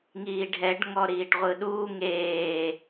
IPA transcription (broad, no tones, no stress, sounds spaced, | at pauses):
ŋ iː ɖʱ ɛ ɖ ŋ ɔ ɾ iː ʈ ʁʷ ɯ ɗ uː ŋ eː